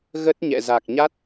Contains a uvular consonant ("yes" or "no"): no